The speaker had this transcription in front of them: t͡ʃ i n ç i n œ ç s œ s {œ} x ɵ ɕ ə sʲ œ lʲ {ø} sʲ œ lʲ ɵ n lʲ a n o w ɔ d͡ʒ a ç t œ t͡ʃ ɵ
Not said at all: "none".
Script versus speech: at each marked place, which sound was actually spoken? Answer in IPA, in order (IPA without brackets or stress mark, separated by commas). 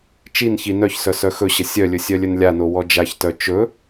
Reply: œ, ɵ